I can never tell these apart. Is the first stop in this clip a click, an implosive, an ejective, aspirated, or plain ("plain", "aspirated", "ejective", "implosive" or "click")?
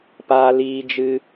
plain